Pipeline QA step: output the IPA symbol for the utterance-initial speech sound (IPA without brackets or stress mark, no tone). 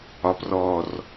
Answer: ɒ